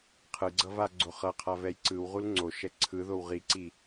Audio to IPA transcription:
qʰ ɯ ɡ͡ǀ ʌ v a ɡ͡ǀ o χ ʌ qʰ a v ɛ j ǀ ɯ w ʁ u l ŋ͡ǀ o ʃ ɛ ǀʰ ɯ ð o w ʁ i ǀ i

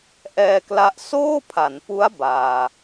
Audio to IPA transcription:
ʔ ɛː˧ k l a˦˥ ʔ s oː˥˩ pʰ a˩˦ n p u˦˥ a̯ b aː˧

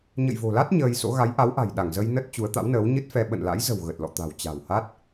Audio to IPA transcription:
ɲ ə̰˧˨ j v o̤˨˩ l a˦˥ t̚ ɲ əː˧ j s o̰˧˥ ɣ a˨˦ j ʔ a˨˦ w ʔ a̤˨˩ j ɗ a˧˩ ŋ z ə˧ j n ə˦˥ t̚ t͡ɕ u˨˦ ə̯ t̪ a̰˧˥ w n əː˨˦ w ɲ ɨ˦˥ t̚ f ɛ˧ ɓ ə̰˧˨ n l a̰˧˥ j z ə̤˨˩ w ɣ ə˨˩ t̚ l ɔ̰˧˨ t̪ a̤˨˩ w t͡ɕ a̤˨˩ w h a˦˥ t̚

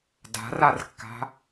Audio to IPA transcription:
d a̤ r a r kː a̤

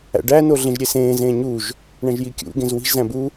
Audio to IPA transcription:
æ̰ ɖ æ n o ɮ ẽ ʒ ɾʲ e s ẽː z ẽ ɲ u ʒ | ɳ æ̃ ʒ j i kʲ ṵ ɡ ẽ z w i̤ ʒ z æ̃ b u

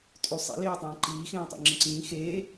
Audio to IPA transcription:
tʼ ʉ sˤ ḭ l eː tˤ ẽː ǃ iː x ẽː tˤ ḭ ŋ͡ǁ ẽ ǀ ĩː x eː

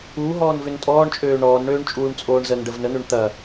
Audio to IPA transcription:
u ɦ ɔː n v ʏ n tʼ ɔː ɳ t͡ʃʼ øː ɳ ɔː n ɳ øː ɳ t͡ʃʼ uː ɳ t͡sʼ oː ɳ z ə n ɖ ə v n ə n̪ ø ɳ t̪ ɐ

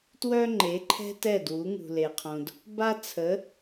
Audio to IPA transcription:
t w œ˥ ŋ͡ǃ e˩˥ ǃʰ ɛ̤˥ t ɛ˥˩ d w u˩˥ ŋ ṳ˩ l e˩ qʰ õ˩ d | b a˥ t͡sʰ ə˩˥

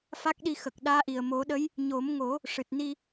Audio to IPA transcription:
f a˦˥ k̚ ɗ i˧ x ə˨˩ k̚ ɗ aː˧˥ ʔ i˨˩ ə̯ m o˨˩˦ ɗ ə˧˥ j | ɲ o˨˩˦ m ŋ o˨˩˦ | ʂ ɨ˨˩ t̚ n i˧

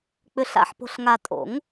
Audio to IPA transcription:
k͡p ʏ˨ ɬ a̰˨ ħ p o̤˨ ɬ ŋ a˨ tʼ o̰˨˩˦ ŋ

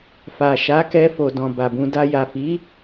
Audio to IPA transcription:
f a˨ ʃ a˨˦ k ɛ˧ f o˨ d ɔ̃˨ b a˨ b ũ˧ d a˧ j a˨ f i˨˦

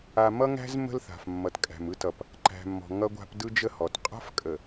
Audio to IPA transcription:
a˨ m ʌ˦ ŋ æ̤˦ z m ə̤˦ l θ a̤˨ f mː ʌ˨ t kʼ æ̤˨ m ɯ˦ t ʌ˨ p | ǃ æ̤˨ mː ɔ̤˨ ŋ ʌ˦ ɡʷ a̤˦ p d ɯ˦ d͡ʒ ə˦ h ɔ˨ t qʼ a̤˦ f kʼ ə˨

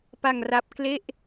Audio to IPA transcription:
p a˧ ŋ r a˦˥ p̚ k l e˥˩ ʔ

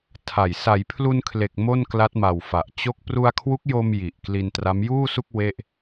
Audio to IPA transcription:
tʰ a˨˩ j s a˩˦ j pʰ l u˧ n kʰ l e˨˩ k̚ m o˥˩ n k l a˦˥ t̚ m a˨˩ w f a˨˩ ʔ t͡ɕ o˥˩ k̚ p r u˧ a̯ kʰ w u˦˥ k̚ j o˧ m j i˨˩ ʔ k l i˧ n t r a˦˥ m j uː˥˩ s u˥˩ k̚ w e˥˩ ʔ

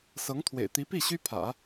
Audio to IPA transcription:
s ɤ˧˥ ŋ t̪ʰ w ḛ˨˩ ɪ̯ t̪ i˧˥ p i˥˩ ɕ y˥ pʰ ä̰˨˩˦

